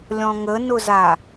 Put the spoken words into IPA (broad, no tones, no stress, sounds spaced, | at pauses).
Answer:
lʲ ɔ̃ ŋ ə n ʊ z a